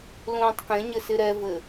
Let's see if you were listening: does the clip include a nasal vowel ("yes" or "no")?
yes